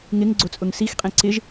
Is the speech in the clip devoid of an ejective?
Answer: no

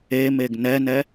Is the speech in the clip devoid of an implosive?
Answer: yes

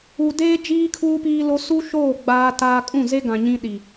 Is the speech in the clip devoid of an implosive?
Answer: no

